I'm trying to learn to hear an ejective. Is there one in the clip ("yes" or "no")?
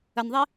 no